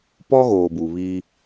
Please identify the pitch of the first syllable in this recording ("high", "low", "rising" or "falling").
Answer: high